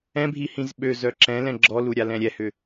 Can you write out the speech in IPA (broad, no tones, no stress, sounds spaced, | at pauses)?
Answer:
ɛ̃ bʱ i h ĩ z ɓ ø z œ ǁ ɛ̃ l ɛ̃ ɡ͡ǁ ɔ l u ɾʲ a l ɛ̃ ɾʲ ɛ h ʏ